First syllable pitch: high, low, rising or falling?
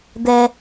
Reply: low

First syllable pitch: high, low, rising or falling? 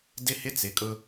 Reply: high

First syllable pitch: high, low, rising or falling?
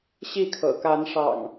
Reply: falling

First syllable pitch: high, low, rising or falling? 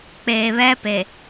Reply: low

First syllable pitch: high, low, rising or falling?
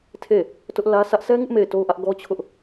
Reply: falling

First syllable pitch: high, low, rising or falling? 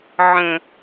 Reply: low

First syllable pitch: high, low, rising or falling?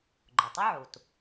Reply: low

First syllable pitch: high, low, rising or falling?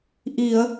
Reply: low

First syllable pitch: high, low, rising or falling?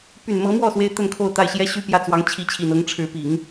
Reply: low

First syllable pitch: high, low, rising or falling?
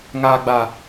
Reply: low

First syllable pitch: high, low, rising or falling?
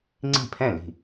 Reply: falling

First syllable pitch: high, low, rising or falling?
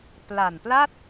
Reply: low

